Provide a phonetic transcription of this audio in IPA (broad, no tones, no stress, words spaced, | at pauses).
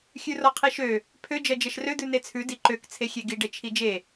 xʲʉrɔqʰiʃø | pʰø d͡ʒɜd͡ʒɜʃrø d̪ʉnet͡sʰʉ diǃøk t͡sʰexʲeɡi ɖet͡ʃʰid͡ʒe